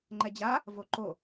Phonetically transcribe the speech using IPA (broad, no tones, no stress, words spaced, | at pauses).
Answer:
ŋ͡ǃɛd͡ʑa | voǃo